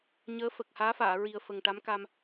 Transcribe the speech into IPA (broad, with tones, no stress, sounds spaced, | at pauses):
ɲ əː˧˥ f ə˨˩ k̚ h aː˧˥ f aː˨˩˨ ɹ i˨˩ ə̯ f ə˨˩ ŋ ʈ a˧˥ m k a˧ m